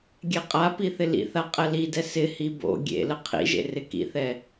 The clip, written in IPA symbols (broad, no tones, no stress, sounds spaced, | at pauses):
ɡʲ ɛ qʼ a p i θ ɪ l ḭ θ a qʼ ɛ l i d ɛ s ɪ h i b o̰ ɡʲ ḛ l ə qʰ ḭ ʒ ḛ r ɪ k ḭ θ ɛ